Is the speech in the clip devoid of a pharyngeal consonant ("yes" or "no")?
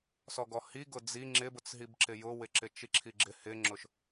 yes